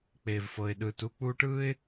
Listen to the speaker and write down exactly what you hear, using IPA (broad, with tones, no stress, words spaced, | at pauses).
k͡peː˨vfɤ˨ɪ̯ɗɯː˨t u˧k͡puː˧ʈɯː˦ɪ̯